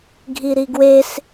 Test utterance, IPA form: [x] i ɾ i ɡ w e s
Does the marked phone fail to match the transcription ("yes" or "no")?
yes